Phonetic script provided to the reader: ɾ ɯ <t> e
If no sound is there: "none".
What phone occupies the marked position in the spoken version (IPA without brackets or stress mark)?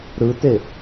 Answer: t